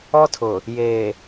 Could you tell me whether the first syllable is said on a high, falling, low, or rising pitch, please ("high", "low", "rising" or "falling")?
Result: high